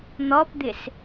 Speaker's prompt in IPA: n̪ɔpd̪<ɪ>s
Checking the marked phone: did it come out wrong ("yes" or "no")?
no